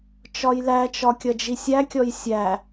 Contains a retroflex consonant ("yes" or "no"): no